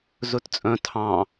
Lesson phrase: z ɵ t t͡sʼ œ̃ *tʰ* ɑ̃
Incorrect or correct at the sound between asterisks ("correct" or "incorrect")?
correct